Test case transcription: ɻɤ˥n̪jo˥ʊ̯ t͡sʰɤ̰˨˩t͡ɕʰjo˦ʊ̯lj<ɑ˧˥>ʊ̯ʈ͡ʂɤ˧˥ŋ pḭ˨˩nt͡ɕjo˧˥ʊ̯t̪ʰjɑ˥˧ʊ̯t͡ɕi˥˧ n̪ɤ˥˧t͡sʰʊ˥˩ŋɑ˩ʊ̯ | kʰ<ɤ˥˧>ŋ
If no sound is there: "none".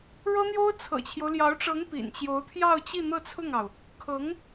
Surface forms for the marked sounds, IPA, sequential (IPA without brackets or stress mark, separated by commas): ɑ˧˥, ɤ˧˥